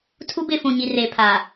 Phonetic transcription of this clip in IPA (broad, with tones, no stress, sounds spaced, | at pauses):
tʰ u˦ b ɪ˦˨ f ũ˨ ɲ i˨ r eː˨ pʰ aː˨